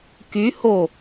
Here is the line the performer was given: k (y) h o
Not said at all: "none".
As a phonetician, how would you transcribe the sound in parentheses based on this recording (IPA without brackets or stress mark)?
y